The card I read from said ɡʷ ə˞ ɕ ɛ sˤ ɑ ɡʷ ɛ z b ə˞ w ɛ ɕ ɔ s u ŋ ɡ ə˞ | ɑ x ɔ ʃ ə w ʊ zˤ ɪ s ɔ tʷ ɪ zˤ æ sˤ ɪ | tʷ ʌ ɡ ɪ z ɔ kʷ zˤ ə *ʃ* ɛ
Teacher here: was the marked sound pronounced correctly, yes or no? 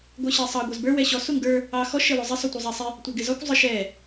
yes